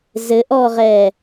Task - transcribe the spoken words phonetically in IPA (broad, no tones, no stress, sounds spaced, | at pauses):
z ɘ ʔ ɔː ʁ ɛː